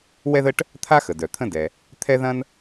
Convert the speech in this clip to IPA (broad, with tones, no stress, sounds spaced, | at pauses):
w ɛ˥ ð ə˥ ʈ | t̪ʰ a˥ x ə˩ d œ˩ t̪ʰ ə̃˥ d ɛ˩ | t̪ʰ ɛ˥ ð ɐ̃˥ n